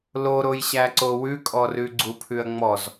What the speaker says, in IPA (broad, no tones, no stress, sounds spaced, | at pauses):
l o ɾ o j ɕ æ ǀ o w ʉ kʼ ɔ r ʉ ɡ͡ǀ u pʰ ʉ ɐ̯ ŋ͡m ɔ z